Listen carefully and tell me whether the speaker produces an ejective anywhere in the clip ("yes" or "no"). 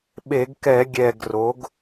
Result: no